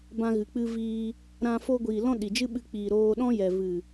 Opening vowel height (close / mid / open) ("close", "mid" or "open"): open